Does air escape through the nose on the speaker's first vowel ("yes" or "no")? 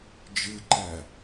no